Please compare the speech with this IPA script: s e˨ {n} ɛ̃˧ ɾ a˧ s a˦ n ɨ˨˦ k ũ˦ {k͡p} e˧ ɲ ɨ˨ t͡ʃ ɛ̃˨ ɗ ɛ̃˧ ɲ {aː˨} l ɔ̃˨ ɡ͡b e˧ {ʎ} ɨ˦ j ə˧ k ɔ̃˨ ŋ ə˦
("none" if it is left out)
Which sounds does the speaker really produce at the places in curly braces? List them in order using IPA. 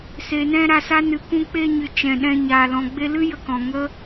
n, k͡p, aː˨, l

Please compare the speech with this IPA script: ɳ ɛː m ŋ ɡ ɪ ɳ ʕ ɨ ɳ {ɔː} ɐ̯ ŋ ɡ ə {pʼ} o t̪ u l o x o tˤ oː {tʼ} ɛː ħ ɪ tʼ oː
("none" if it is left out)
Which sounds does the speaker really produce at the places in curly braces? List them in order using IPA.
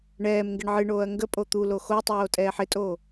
oː, pʼ, tʼ

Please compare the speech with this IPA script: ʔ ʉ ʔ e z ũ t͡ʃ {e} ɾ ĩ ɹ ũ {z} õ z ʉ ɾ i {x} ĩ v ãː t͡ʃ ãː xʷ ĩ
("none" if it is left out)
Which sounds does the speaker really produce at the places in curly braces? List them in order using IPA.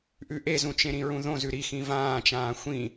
ẽ, ð, x

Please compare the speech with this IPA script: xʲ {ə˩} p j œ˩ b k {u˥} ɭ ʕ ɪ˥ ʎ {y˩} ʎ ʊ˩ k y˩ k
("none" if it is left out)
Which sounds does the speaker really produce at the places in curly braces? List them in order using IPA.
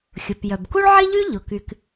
ʊ˩, u˥, y˥

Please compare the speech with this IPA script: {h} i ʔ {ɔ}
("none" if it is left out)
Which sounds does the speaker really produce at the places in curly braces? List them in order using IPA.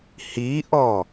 h, ɔ

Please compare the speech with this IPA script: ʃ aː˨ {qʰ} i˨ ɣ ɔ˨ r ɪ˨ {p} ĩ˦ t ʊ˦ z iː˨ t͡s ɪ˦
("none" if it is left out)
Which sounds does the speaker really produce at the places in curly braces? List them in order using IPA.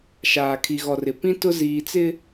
kʰ, p

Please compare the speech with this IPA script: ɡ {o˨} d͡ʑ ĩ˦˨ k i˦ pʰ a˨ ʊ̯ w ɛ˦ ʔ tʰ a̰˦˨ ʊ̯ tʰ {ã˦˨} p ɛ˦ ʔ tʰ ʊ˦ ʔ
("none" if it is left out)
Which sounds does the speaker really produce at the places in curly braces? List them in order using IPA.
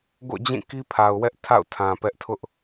o̰˦˨, ã˨

